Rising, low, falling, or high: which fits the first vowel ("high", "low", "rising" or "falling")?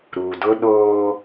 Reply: low